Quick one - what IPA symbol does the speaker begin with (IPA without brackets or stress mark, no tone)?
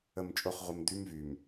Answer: ə